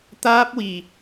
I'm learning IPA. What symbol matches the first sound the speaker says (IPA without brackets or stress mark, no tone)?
t̪